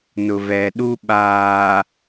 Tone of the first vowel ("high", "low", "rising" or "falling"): low